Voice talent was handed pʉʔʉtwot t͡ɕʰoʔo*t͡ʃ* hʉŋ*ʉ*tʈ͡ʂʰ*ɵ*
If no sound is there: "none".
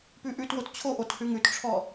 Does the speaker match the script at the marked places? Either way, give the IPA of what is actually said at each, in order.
t, ʉ, ɔ

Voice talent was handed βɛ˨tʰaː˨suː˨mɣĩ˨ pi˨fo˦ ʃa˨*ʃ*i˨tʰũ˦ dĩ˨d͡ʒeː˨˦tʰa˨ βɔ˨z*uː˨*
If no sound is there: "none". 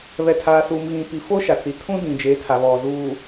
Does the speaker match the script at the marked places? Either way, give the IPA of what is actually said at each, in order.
t͡s, uː˨

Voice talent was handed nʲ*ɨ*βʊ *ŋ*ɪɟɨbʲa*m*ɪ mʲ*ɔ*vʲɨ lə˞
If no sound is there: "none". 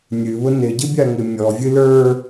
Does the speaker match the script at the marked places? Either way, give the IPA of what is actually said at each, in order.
ɨ, n, ŋ, ɔ

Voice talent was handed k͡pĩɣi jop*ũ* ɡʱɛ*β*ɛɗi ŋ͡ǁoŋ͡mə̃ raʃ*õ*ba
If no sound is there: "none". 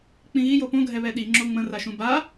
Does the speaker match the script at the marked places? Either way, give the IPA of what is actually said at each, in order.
õ, β, ũ

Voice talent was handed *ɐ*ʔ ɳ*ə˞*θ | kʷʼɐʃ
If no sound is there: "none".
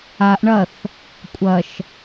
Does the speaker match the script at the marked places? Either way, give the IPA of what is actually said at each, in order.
a, ɐ

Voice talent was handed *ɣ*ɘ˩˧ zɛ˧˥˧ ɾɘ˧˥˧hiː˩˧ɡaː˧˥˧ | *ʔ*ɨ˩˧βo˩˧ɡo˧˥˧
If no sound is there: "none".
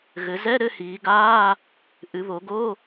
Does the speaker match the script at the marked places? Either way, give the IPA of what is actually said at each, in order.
ɣ, ʔ

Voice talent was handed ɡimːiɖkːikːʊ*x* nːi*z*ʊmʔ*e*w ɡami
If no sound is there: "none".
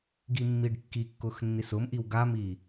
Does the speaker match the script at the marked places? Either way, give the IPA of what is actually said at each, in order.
x, s, i

